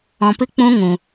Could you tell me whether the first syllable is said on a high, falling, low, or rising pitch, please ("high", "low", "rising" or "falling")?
low